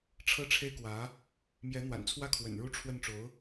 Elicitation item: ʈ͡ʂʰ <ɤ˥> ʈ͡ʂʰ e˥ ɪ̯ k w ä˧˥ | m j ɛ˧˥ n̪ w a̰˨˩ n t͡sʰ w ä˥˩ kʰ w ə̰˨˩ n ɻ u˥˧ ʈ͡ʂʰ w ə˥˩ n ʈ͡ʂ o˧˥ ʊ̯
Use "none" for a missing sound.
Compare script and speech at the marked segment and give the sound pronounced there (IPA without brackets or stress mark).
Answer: ɤ˥